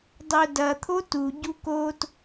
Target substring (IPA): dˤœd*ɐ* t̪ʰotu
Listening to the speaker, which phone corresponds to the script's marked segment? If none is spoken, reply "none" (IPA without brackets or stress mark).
ɐ